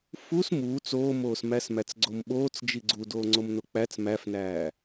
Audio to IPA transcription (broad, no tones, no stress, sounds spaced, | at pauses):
f u s m uː t͡s oː m oː s m æ s m æ t͡s ɡ͡ǀ o m ɓ oː t͡s d͡ʒ i ɡ͡ǀ u d oː ŋ͡ǀ o m n o k͡p æ t͡s m æ f n æː